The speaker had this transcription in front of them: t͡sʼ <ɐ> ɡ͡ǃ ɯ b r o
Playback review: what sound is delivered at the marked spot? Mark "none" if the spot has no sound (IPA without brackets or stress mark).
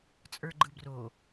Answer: ə˞